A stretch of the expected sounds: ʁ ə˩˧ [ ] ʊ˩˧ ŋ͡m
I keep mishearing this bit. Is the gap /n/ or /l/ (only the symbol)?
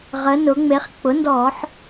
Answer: n